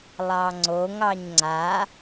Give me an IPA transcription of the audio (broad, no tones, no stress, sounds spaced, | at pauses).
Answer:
lˠ ɑ ŋ͡ǀ o ŋ ɑ ɲ ŋ͡ǀ a